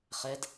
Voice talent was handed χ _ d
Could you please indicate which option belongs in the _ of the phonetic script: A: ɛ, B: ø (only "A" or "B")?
A